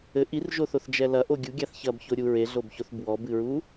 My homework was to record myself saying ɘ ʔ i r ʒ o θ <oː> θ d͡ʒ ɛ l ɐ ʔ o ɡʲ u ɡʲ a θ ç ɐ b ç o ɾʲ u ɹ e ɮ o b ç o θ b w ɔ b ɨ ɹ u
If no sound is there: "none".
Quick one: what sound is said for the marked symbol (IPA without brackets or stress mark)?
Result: o